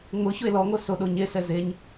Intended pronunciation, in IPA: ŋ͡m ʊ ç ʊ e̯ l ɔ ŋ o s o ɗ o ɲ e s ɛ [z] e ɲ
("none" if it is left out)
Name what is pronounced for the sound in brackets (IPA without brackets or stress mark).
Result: z